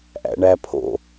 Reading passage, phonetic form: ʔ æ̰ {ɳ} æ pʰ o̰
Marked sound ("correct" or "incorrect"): correct